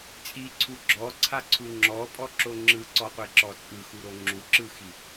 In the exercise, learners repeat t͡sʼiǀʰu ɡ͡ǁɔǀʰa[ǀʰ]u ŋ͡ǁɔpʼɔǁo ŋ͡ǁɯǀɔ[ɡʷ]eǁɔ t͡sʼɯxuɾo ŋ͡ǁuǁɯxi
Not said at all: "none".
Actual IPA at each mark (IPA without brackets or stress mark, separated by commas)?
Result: ǀʰ, qʷ